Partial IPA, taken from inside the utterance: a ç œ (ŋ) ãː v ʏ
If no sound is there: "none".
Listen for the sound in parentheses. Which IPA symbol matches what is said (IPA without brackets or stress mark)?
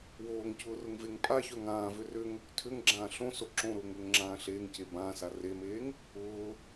ŋ